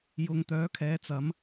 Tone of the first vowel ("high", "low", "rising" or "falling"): low